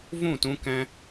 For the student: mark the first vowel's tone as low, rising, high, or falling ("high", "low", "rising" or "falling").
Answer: falling